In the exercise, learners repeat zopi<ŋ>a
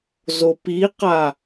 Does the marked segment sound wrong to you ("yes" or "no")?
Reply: yes